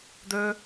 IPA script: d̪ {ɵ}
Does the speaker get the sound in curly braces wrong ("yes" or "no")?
yes